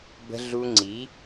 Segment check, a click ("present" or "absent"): present